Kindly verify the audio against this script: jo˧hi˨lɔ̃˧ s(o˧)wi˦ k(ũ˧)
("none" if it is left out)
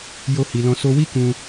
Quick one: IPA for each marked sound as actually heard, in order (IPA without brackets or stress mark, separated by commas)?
o˧, ũ˧